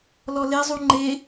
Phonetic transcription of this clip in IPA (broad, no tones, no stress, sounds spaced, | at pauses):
l ɔ l e zˤ u ŋ͡ǃ e